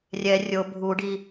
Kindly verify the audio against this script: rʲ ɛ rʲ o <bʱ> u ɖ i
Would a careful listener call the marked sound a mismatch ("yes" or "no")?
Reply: no